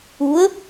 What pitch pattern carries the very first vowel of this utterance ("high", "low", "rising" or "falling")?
rising